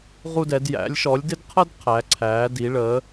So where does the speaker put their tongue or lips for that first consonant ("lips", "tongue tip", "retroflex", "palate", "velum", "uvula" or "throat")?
uvula